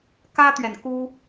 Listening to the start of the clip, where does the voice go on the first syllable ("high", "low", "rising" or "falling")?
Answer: high